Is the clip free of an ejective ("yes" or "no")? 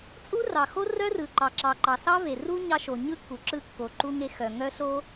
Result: no